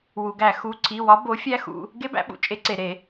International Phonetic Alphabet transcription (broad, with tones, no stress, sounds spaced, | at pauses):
w u˩ ɡ æ˧˩˧ x u˩˧˩ ǀ i˩˧˩ w ɒ˨˥ b o˨˥ fʲ æ˦˥ x ṵ˩˧˩ | ɡ e˦˥ b æ̰˨˥ ɓ ṵ˩ t͡ʃʼ e˨˥ ǀ e˩ ɾ e˧˩˧